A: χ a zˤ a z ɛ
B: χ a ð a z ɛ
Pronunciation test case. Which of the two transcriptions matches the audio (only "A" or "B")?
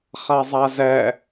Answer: A